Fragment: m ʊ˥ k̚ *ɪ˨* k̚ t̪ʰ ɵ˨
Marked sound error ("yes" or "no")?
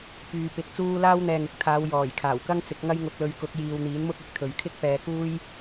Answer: yes